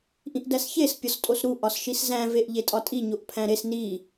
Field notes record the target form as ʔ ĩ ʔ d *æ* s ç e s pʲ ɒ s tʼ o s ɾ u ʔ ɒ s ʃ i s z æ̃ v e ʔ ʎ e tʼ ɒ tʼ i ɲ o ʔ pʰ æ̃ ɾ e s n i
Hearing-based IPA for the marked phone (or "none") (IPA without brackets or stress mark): æ